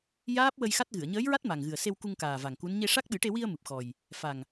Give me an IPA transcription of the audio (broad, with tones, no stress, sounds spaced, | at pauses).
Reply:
j aː˦˥ p̚ w ə˧ j x a˦˥ t̚ ɣ ɨ˨˩˨ ə̯ ɲ əː˧˥ j ɹ a˦˥ t̚ m a˨˩ ŋ ɣ ɨ˨˩ ə̯ s e˧ w k u˧ ŋ k aː˨˩ v a˨˩ ŋ k u˧˥ n ɲ e˧ ʂ a˦˥ k̚ ɓ ɨ˨˩˦ ʈ e˧ w i˧ ə̯ m ɨ˨˩ p̚ x ɔ˨˩ j | f a˨˩ ŋ